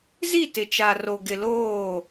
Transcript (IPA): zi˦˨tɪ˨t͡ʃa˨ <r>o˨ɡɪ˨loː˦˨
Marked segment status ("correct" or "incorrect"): correct